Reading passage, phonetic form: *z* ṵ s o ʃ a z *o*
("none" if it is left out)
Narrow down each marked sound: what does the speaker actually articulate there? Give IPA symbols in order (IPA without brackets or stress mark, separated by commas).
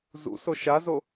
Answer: z, o